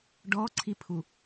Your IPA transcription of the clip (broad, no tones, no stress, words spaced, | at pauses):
ɖɔǀʰipʰu